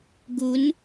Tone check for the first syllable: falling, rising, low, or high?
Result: rising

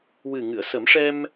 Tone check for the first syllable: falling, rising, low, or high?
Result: low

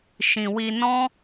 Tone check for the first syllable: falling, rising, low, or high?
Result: low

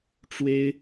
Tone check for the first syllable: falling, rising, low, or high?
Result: high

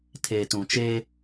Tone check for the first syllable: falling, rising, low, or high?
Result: low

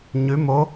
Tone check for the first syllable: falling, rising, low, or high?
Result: rising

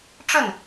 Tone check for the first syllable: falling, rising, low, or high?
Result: falling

